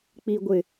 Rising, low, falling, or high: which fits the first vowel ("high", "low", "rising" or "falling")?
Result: low